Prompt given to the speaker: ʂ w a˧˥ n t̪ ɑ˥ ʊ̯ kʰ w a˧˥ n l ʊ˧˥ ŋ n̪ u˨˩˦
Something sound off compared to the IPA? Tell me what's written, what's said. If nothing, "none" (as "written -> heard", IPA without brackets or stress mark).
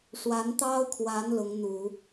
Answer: none